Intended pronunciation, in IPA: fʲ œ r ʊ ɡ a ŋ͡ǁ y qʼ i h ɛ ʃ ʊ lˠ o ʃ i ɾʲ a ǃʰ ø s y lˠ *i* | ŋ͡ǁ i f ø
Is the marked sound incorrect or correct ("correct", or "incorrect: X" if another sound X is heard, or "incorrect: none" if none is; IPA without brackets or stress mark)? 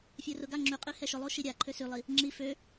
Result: correct